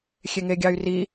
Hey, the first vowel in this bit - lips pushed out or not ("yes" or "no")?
no